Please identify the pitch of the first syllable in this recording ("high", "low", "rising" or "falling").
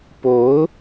rising